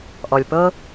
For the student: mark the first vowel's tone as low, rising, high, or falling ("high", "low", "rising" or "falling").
low